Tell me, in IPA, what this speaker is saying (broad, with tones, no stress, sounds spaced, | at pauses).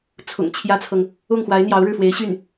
t͡sʰ ʊ̰˨˩ ŋ t͡ɕʰ j ä˥ t͡sʰ ɤ˨ ŋ | ʊ˥˩ ŋ x w a˧˥ ɪ̯ n̪ j ɑ˧˥ ʊ̯ ɻ ɻ̩˥˩ f w e˧˥ ɪ̯ ɕ y˥˩ n